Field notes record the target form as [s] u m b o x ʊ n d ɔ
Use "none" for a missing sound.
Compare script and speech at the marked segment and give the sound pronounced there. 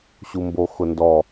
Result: ɕ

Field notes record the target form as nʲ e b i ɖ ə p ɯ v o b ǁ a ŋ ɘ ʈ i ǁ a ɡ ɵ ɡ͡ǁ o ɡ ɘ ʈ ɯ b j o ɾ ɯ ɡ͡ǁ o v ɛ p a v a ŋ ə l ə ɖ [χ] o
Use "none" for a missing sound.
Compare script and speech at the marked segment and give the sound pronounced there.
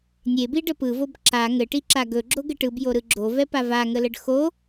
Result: x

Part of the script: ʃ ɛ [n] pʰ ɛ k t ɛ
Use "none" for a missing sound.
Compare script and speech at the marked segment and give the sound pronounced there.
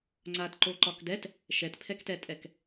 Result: t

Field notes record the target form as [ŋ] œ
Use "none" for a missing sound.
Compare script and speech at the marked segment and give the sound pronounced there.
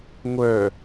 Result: ŋʷ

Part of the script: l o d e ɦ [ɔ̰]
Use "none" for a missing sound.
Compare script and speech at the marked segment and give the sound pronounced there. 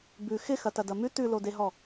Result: ɔ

